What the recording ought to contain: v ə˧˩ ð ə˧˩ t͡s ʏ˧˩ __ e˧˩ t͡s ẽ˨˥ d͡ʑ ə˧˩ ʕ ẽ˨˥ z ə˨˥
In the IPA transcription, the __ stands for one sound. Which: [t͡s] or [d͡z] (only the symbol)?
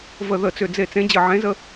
d͡z